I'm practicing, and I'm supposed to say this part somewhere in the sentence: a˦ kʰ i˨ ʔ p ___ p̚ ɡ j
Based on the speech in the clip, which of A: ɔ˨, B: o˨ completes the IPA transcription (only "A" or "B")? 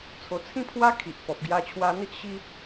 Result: A